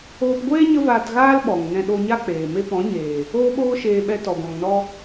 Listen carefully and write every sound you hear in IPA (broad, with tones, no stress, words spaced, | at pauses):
oː˧pɡʷeː˦ ɲə˦vaː˧tɣaː˦l ɓɔ˨ŋnɛ̃˧ ɗo˧ɲa˦k͡peː˨ me˧pɔ̃˨˦ɲeː˨ | oː˦ɓoː˦ ʃeː˧ɓɛ˧tɔ˨ ɡʷã˨ŋnɔ˧